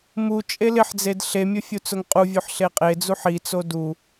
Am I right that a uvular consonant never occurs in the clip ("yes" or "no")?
no